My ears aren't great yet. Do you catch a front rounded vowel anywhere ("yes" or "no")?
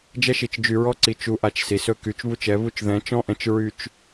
yes